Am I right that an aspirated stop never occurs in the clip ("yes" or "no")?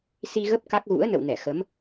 yes